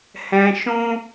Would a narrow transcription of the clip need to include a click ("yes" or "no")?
no